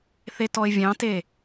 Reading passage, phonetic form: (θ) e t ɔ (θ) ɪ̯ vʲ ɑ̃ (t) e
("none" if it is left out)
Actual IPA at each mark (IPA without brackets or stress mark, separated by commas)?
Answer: θ, none, t